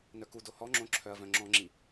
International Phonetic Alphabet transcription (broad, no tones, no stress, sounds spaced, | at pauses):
n œ k u d o h ɔ ŋ͡ǁ õ ǁʰ œ ɐ̯ v œ̃ ŋ͡ǁ ɔ̃ ŋ͡ǁ i